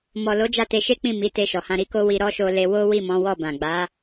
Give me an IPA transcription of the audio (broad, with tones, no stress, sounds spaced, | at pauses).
m ɔ˨ l o˨˦ d͡ʒ a˦˨ t e˧ ʃ e˦ k͡p ĩ˦˨ m i˨˦ t e˧ ʃ ɔ˨ h ã˧ ɾ i˦ k o˦ w i˧ ɾ ɔ˦ ʃ o˧ l e˧ w o˦ w i˦˨ m ɔ̃˨˦ w ɔ˦˨ b ã˨ ɡ͡b a˨˦